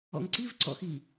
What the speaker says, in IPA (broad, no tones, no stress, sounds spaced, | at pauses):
ɔ̰ ŋ ǀ i v ǀ ɔ̰ x i